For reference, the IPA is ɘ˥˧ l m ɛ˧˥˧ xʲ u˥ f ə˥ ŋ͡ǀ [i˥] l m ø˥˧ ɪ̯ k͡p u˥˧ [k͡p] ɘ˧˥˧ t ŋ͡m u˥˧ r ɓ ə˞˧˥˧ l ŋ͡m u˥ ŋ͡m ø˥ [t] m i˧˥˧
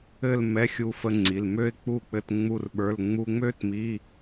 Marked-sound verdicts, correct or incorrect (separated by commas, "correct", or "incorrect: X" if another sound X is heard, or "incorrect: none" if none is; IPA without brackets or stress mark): incorrect: i˩˧˩, correct, correct